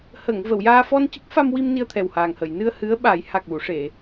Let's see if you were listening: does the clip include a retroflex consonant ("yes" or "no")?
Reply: yes